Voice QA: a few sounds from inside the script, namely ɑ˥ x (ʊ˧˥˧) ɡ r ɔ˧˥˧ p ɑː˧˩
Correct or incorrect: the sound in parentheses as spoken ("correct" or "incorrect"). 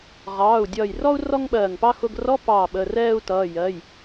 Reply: correct